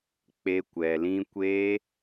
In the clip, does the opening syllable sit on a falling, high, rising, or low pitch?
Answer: high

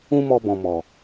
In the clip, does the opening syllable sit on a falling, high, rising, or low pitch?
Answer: high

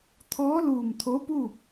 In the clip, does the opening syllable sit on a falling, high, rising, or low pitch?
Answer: rising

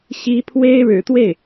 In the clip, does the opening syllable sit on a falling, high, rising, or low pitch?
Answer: high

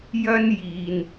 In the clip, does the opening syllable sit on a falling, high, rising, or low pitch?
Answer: high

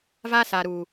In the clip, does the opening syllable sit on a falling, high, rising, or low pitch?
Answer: high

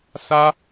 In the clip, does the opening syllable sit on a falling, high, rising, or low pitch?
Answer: high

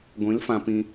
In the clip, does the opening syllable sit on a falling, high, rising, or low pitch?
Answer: rising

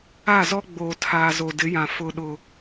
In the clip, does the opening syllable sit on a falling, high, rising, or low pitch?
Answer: falling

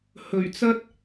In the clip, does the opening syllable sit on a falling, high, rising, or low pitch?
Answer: low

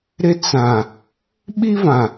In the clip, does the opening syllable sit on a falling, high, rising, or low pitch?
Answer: high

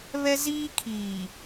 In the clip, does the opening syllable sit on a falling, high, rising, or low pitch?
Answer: high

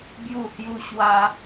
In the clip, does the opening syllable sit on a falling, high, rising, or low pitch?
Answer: falling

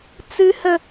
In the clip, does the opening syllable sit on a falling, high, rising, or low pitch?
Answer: high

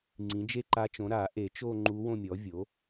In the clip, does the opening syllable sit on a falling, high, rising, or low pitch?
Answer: rising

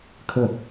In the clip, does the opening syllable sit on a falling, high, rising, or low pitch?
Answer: falling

